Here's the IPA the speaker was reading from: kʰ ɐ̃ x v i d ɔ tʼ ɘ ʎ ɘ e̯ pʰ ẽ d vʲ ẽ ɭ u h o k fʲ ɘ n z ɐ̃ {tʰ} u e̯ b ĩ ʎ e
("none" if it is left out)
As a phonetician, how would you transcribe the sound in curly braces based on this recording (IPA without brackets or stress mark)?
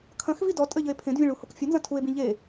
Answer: tʰ